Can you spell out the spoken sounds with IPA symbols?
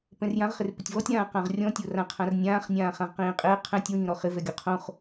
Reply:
p ɛ̃ r j ã ʁ χ ɪ r p ɪ tʲ v ɔ tʲ ɾ ãː q ã ʁ rʲ ɔ̃ tʲ o r ã qʰ ã r nʲ ãː χ nʲ ãː χ ã ʁ q ĩː qʼ ɪː qʰ ɛ̃ tʲ w ĩː ɾ ɔ χ ɪ v ɛ ɡʲ ɔ qʰ õ χ

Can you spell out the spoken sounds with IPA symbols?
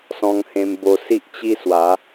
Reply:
s ɔ̃˧ ŋ h ẽ˧ m b o˧ s i˦ ʔ t͡ɕ i˦ s w a˨˦

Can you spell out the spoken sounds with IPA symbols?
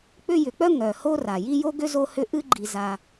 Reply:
k͡p ʏ˦ j ʏ˨ k͡p œ˥ ŋ œ˩ h o˦ r a˩ j i˦ j o˥ ɡ ʏ˥ z o˦ h ʏ˦ ʔ ɨ˥ ɡ͡ǃ i˨ z a˨

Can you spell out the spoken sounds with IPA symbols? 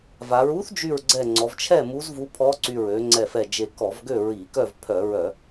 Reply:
v a˩˧ ɹ u˧˥ θ d͡ʒ y˧˩ ɹ ɡ͡ǀ ɛ˧˩ ŋ͡ǀ ɔ˩˧ v t͡ʃʰ ɛ˥˨ m u˧˥ z v u˧˥ pʰ ɔ˧˥ ǀ y˧˩ ɹ ø˩˧ ŋ͡ǀ ɛ˧˩ f ɛ˧˩ d͡ʒ e˧˩ k ɔ˧˩˧ v ɡ ø˥˨ ɹ i˧˩˧ k œ˥˨ v pʰ œ˧˩˧ ɹ œ˧˩˧

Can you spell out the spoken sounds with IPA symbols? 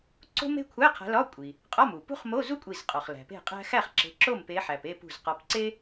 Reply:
ǀ o̤˥ m e̤˥ kʷʰ æ˧˥˧ qʰ æ̤˨˦ l ɒ˧˥˧ kʷʼ i˩ | qʼ ɒ˧˥˧ m u˩ p ṳ˥ χ m o˧˥˧ z u˥ kʷʼ i˧˩ z qʼ ɒ˩ χ l æ̤˩ p e̤˥˨ qʼ æ̤˥ x æ˥˨ χ ǁ e̤˨˦ ǁ o˥˨ m p e˨˦ ħ æ˩ p e˥˨ p ṳ˧˩ z q ɒ˨˦ p ǀ e˥

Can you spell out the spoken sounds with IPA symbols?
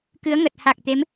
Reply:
k ɨ˨˦ ə̯ ŋ ə˨˩ t̚ h a˨˩ k̚ t̪ e˨˦ m

